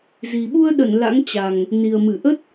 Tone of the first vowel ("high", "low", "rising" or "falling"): low